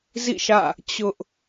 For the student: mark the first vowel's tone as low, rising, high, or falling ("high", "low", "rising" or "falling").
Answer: falling